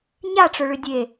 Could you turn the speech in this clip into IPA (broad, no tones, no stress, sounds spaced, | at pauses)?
ɲ a ʈ͡ʂ ʊ ɭ ʏ dʲ e